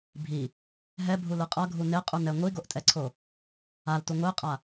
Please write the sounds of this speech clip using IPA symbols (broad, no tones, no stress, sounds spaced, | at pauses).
bʱ i | ɦ ɛ bʱ u l ɯ qʼ ʌ ɡʱ u n e qʼ u n ɛ ŋʷ i ɡ o ʔ tʼ ɛ ǀʰ o | a l t u ŋʷ e qʼ a